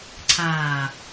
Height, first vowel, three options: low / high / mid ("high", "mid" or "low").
low